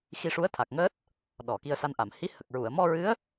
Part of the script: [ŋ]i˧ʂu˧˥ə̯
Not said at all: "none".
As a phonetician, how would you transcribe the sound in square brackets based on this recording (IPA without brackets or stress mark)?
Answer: x